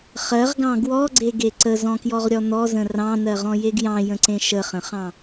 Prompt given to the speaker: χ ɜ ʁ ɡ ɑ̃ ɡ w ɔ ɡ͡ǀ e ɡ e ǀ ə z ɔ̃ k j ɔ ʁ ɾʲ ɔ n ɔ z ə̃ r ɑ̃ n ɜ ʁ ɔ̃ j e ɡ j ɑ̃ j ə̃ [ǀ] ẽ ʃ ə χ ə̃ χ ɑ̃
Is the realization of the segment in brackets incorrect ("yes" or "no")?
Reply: no